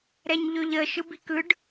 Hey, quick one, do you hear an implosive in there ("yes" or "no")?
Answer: no